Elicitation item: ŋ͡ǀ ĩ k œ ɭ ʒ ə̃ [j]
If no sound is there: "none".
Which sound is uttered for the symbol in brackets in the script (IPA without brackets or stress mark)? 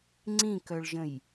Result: j